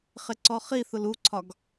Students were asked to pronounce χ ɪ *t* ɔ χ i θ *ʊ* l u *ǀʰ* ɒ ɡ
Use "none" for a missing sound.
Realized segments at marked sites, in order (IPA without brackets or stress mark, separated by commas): ǀ, ʊ, ǀʰ